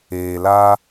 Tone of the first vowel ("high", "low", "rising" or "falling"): low